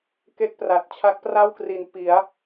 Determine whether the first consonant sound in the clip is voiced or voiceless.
voiceless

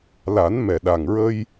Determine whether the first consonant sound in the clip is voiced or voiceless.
voiced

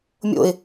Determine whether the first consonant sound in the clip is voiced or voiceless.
voiced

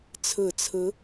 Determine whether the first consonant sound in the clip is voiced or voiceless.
voiceless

